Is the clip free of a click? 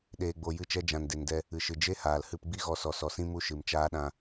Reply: yes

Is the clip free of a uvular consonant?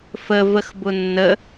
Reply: yes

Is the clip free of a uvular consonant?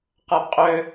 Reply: no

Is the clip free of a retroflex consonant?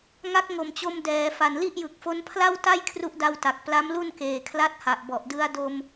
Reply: yes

